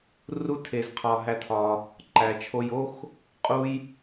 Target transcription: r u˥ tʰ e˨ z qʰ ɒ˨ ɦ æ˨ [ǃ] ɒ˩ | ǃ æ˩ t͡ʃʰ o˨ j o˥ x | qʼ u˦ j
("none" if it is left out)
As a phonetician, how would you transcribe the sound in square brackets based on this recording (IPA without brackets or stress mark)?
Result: tʰ